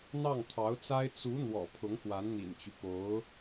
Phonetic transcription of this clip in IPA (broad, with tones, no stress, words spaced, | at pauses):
n̪ɑ˥˩ŋt̪ʰɑ˧˥ʊ̯t͡sa˥ɪ̯ t͡su˧˥ n̪wɔ̰˨˩pʰʊ˧˥ŋxwa˧˥n n̪ḭ˨˩nt͡ɕy˦ po˧˥ʊ̯